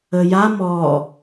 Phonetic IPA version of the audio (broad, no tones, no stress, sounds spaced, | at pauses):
ə j a m ɔ